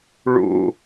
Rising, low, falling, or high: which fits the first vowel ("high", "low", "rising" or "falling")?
low